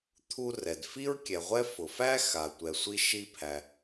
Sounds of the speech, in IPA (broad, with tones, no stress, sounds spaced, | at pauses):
t̪ʰ u˧ r ɛ˩ d f i˥ ɹ kʲ ɛ˩ ʁʷ ɛ˥ f ʊ˩ f æ˥ x a˩ tʷ ɛ˩ sʷ i˧ ʃ i˧ pʰ æ˩